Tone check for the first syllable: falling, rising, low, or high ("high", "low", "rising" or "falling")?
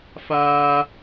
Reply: high